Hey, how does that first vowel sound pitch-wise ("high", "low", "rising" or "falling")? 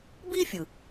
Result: high